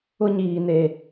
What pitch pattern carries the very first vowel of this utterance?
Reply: high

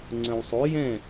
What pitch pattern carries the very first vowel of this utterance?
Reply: low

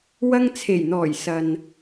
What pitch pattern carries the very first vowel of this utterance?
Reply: high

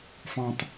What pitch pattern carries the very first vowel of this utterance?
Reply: low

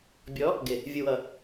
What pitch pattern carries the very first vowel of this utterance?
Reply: rising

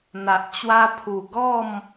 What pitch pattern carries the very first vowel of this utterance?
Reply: low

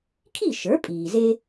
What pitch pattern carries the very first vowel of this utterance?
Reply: falling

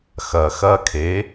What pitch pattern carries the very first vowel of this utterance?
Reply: low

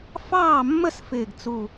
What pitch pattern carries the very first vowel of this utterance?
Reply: falling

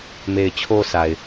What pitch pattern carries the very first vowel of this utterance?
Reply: low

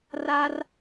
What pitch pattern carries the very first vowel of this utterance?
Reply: high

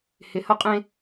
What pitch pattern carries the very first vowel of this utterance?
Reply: low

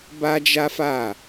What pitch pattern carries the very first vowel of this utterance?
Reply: high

